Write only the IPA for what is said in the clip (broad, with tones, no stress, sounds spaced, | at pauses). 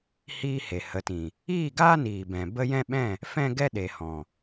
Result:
h iː˦ h e˨ h ə˨˦ t ĩ˨ | iː˦˨ ɡ aː˦ n iː˨ b ɛ̃˨ b ə˦ j ɛ̃˦ ɓ ɛ̃˦˨ | f ɛ̃˦ ɡ ɛ˦ ɗ e˨ h ɔ̃˨